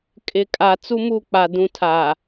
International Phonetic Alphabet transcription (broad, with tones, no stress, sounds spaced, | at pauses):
kʼ ɪ˨ kʼ a˨ t͡s u˦ m u˦˨ k͡p a˨ d ũ˨ tʰ a˨